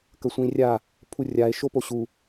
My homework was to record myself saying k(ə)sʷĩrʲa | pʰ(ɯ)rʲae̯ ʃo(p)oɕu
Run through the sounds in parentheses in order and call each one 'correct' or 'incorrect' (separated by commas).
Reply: correct, incorrect, correct